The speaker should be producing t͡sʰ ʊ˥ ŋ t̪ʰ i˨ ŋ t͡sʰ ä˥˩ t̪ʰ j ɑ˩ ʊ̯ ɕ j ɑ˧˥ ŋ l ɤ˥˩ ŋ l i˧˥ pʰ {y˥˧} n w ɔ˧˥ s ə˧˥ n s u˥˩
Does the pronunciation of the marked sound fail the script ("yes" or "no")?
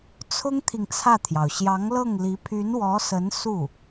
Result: yes